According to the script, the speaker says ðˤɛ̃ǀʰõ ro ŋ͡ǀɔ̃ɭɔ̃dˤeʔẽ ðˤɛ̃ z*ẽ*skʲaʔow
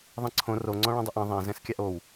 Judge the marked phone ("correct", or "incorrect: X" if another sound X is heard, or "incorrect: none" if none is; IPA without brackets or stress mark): incorrect: ɛ̃